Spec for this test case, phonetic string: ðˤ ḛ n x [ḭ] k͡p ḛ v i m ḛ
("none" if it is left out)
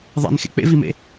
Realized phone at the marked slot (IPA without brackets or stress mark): ḛ